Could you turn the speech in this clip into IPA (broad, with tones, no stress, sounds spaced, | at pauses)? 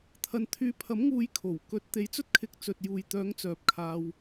t̪ʰ ɐ˧ n t̪ʰ yː˨˧ pʰ ɐ˨˥ m ŋ uː˨˧ j kʰ o˨˩ w k ɵ˨˥ t̚ t̪ e˧ j t͡s ɵ˥ t̚ kʰ ɪ˧ k̚ t͡s ɵ˨ t̚ j uː˨ j t̪ œː˨˥ ŋ t͡s œː˨˥ p̚ kʰ aː˧ w